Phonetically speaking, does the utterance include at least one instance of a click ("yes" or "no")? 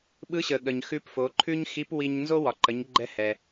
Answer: yes